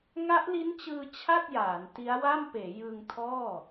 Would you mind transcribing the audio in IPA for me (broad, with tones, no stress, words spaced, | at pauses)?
ŋa˦˥ʔli˦˥nt͡ɕɯː˧ t͡ɕʰa˥˩t̚jaː˩˦n ti˦˥a̯wa˥˩m peː˩˦ jɯ˧ŋtʰɔː˥˩